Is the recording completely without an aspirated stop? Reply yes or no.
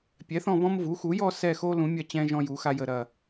yes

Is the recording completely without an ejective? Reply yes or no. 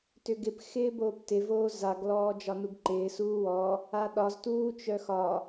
yes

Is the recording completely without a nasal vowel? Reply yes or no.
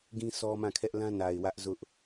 no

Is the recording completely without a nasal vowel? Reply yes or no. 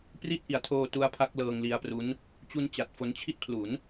yes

